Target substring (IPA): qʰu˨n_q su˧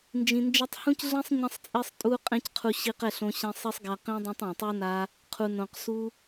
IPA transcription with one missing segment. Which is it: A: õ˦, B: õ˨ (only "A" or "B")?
B